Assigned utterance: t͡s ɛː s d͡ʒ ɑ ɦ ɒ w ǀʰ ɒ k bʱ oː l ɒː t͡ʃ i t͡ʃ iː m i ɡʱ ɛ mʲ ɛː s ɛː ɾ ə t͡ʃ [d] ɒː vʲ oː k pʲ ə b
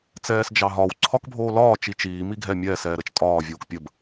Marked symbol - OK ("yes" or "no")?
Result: no